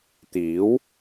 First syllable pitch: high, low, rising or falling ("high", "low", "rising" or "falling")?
rising